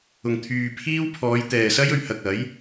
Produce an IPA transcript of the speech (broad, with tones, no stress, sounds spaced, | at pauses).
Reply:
ʊ˨ ŋ t̪ʰ yː˨ pʰ iː˥ w pʰ ɔː˨˧ j t̪ ɛː˨ s ɐ˥ j ɵ˨˧ ɥ h ɐ˨ k̚ ɐ˨˥ j